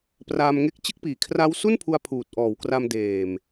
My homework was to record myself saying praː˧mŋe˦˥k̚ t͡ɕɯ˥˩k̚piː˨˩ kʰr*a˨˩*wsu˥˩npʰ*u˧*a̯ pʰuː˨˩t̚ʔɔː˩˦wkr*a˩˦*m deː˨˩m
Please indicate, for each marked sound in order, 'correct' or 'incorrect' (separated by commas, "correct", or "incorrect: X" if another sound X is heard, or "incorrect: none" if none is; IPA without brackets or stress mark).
incorrect: a˦˥, correct, incorrect: a˧